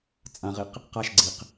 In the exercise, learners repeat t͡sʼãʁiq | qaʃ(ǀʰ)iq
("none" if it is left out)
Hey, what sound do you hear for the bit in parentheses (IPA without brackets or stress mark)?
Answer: ɡ͡ǀ